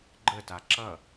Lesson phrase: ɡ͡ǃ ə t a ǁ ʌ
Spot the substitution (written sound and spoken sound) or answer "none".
none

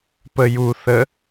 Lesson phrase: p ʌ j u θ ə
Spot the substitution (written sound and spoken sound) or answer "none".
ʌ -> ə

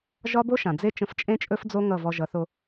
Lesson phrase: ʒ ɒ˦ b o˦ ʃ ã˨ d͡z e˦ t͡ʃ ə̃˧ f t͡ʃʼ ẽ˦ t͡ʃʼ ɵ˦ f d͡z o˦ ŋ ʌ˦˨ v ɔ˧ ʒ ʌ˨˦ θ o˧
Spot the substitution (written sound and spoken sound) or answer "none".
none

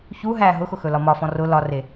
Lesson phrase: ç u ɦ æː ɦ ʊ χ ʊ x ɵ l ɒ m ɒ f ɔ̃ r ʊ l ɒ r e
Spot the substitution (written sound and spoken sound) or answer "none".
χ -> x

